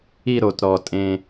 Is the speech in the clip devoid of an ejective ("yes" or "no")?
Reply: no